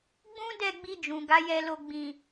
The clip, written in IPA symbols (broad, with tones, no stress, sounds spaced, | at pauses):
ɡ͡b ũ˦ d ɛ˦˨ ɡ͡b i˧ d͡ʒ ũ˨ ɡ a˨˦ j ɛ˧ l o˧ ɡ͡b ĩ˨